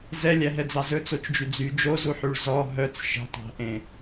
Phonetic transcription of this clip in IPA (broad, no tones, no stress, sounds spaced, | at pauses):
z ɛ lʲ æ ɦ ɛ d͡z ɑ z ɵ t͡s o t͡ʃ d͡ʒ y d͡z y d͡ʒ o z u ħ y ɭ z ɔ ɦ œ t͡s ʃ e̤ tˤ æ̤ ʔ ẽ